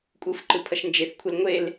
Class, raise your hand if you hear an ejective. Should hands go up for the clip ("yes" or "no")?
yes